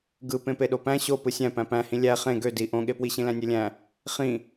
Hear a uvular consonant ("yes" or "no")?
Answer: yes